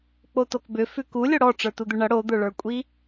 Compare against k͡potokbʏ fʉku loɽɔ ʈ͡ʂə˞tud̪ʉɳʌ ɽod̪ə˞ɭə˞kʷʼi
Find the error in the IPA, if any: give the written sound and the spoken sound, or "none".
l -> lʲ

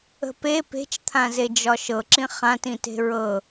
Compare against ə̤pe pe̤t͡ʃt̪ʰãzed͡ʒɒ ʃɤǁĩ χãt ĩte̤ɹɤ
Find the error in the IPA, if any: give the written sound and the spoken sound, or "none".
none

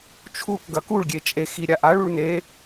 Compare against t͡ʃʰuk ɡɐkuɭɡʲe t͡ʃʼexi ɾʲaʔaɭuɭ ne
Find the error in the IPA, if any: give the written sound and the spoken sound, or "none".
none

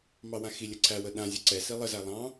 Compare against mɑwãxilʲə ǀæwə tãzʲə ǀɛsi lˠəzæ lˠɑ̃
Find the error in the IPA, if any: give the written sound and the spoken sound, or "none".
t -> ɗ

